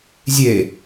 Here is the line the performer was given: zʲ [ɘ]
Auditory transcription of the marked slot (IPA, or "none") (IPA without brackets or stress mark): e